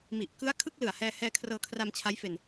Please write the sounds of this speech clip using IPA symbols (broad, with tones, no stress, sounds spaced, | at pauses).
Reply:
m i˨˩ ʔ k ɯ˦˥ a̯ kʰ ɯ˥˩ k̚ l ɯ˨˩ a̯ h ɛː˧ h ɛː˧ kʰ r ɤː˧ kʰ r a˧ m t͡ɕʰ a˦˥ j f e˧ n